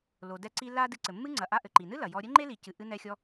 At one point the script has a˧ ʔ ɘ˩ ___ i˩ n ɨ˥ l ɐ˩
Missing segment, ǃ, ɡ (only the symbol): ǃ